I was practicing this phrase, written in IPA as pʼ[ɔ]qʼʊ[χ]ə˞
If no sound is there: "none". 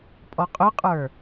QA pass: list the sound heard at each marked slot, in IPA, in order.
ɔ, qʼ

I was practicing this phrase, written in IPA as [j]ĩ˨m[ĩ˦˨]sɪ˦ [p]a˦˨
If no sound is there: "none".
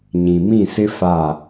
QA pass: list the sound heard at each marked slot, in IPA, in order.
ɲ, ĩ˦˨, f

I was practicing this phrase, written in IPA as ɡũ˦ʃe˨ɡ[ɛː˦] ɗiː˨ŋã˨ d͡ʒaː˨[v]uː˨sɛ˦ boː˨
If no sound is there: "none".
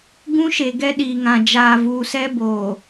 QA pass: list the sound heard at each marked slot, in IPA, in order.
ɛ˦, v

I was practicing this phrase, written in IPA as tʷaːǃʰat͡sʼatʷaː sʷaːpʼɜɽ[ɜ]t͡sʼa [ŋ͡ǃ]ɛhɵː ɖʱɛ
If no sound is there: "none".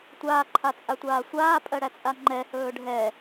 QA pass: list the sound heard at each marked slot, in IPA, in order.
æ, ŋ͡ǃ

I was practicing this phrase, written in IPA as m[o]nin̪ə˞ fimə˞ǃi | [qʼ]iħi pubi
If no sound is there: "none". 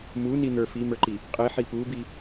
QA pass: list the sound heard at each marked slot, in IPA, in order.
u, qʼ

